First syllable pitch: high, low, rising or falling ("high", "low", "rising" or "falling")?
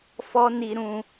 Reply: high